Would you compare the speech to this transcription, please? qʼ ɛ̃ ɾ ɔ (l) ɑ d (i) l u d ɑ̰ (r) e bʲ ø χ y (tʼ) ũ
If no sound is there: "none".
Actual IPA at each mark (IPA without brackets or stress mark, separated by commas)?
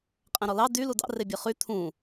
l, y, r, t̪ʰ